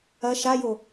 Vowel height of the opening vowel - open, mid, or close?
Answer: open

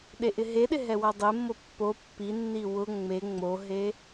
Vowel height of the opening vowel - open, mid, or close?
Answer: mid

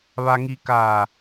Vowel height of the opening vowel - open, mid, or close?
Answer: open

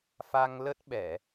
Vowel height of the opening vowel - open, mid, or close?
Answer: open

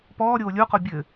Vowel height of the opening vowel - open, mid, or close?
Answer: mid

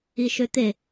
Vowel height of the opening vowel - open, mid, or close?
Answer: close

